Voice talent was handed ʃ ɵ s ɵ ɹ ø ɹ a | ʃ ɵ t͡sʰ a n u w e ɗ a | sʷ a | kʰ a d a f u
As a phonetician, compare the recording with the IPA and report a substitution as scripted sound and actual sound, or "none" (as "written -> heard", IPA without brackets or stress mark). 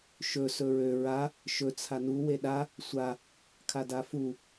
none